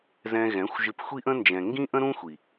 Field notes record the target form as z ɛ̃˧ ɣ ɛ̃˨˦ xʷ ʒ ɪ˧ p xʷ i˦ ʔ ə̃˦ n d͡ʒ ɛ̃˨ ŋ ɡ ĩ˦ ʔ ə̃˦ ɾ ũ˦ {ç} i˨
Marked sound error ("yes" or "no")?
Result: yes